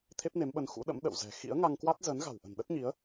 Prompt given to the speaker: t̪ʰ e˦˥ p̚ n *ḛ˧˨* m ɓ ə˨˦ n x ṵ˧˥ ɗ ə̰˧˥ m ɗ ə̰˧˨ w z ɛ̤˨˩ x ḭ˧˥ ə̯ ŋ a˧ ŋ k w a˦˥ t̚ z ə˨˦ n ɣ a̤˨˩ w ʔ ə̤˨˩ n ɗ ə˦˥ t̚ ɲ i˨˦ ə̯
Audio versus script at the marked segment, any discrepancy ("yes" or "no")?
yes